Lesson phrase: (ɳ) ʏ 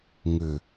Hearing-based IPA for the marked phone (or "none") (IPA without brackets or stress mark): ŋ